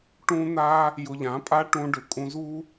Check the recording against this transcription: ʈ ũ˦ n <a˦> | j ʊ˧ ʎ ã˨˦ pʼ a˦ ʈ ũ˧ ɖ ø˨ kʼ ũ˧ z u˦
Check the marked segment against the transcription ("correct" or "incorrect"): correct